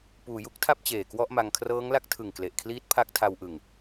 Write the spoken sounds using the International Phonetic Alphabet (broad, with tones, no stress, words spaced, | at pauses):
puː˩˦ju˦˥k̚tʰa˥˩p̚ t͡ɕeː˨˩kwɔ˥˩ʔma˧ŋ kʰrɤː˦˥ŋla˦˥k̚tʰɯ˨˩ŋkle˨˩ʔ kʰliː˦˥t̚pʰa˦˥k̚tʰa˧wʔɯ˨˩ŋ